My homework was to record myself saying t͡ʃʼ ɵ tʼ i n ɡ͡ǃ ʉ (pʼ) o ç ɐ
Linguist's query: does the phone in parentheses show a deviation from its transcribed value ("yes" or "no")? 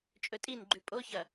no